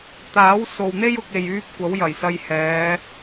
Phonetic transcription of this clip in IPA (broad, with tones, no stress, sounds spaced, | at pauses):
t̪ aː˨˥ w s o˨ w n̪ e˥ j ʊ˨˥ k̚ e˨ j yː˥ p̚ kʷ ɐ˨˥ w j ɐ˨˩ j s ɐ˧ j h ɛː˨˧